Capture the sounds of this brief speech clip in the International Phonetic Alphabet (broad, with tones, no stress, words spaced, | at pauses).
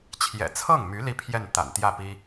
t͡ɕʰjɛ̰˨˩t͡sʰɤ˥˩ŋmy˧˥ li˥˧pʰjɛ˥˩nt̪a̰˨˩nt̪jä˥˩ pi˥